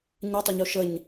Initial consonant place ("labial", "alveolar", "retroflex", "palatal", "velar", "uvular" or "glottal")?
palatal